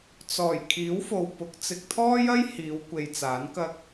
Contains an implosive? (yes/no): no